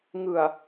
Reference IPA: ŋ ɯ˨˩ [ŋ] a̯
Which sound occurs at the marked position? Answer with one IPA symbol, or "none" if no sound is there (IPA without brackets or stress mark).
none